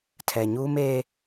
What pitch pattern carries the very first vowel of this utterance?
low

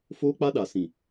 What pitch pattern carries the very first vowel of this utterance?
high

